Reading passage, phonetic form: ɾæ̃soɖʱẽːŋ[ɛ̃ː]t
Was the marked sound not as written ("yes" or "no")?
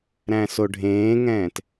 no